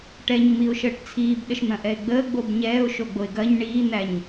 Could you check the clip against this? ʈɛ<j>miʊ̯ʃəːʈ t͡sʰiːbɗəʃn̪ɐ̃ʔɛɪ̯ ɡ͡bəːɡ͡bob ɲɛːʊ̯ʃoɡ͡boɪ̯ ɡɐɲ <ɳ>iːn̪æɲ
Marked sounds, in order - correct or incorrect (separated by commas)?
incorrect, correct